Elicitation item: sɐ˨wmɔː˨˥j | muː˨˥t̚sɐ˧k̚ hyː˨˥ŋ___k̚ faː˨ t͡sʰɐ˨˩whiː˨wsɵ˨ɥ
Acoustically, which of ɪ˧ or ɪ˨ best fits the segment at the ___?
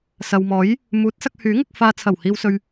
ɪ˧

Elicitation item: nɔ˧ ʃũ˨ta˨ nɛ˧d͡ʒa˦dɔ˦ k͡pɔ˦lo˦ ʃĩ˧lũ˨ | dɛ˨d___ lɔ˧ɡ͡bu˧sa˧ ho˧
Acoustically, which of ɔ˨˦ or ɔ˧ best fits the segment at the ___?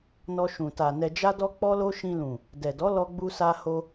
ɔ˨˦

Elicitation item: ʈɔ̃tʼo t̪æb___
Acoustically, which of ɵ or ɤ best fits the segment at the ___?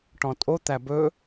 ɵ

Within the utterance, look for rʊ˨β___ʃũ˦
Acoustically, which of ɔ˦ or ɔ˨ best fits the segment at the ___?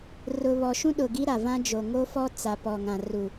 ɔ˨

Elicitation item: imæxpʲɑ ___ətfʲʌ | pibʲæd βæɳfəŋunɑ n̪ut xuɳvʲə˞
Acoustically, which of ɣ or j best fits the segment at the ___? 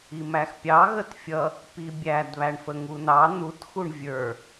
ɣ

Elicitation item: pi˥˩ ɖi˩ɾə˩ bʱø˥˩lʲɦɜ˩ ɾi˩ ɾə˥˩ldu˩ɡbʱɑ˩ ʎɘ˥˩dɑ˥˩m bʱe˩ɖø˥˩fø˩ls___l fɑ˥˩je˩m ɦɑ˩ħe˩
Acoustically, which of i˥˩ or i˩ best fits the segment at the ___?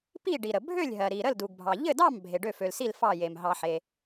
i˥˩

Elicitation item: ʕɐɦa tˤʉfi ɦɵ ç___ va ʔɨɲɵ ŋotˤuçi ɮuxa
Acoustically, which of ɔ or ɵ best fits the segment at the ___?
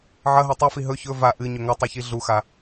ɵ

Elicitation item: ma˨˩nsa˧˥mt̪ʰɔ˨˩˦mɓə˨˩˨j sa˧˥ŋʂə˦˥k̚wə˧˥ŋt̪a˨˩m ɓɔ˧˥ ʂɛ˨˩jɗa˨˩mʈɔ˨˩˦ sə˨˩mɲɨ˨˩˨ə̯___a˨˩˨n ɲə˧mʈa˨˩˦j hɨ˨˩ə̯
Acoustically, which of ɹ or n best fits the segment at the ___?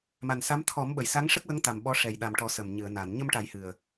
n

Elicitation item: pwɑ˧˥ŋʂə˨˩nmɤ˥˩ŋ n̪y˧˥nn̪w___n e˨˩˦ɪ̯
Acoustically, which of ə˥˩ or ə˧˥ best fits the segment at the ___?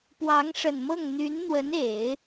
ə˧˥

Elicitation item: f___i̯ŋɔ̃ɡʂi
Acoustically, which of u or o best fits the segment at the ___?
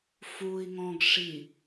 u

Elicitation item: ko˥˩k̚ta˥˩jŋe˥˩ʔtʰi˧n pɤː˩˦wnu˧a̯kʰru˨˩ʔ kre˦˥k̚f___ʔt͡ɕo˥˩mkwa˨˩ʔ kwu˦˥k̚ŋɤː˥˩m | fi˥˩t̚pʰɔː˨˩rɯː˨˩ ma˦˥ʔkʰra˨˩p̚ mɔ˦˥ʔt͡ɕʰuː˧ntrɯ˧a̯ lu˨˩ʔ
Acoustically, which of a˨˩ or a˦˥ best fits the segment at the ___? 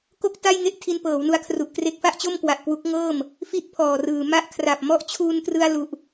a˦˥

